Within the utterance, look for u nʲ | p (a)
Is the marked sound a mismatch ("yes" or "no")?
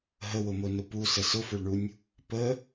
yes